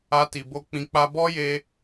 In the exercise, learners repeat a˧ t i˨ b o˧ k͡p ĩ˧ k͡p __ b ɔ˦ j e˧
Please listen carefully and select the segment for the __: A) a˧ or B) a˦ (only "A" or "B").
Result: B